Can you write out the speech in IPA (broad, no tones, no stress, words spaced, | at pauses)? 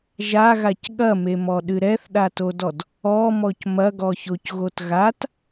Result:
ʒaɣac ɠɐmemɔɗɨ ɾɛθɗatodɔd | ɔmɔc mɐɡɔçocɣot ɣat